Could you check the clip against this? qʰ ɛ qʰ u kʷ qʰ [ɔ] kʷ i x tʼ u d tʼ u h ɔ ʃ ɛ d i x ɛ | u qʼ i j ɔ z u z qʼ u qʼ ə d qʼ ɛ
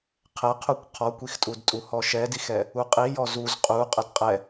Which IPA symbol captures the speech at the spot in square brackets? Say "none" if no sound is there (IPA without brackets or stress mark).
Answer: ɔ